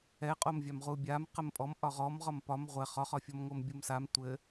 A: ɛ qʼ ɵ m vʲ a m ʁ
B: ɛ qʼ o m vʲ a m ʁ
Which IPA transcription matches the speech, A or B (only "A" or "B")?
B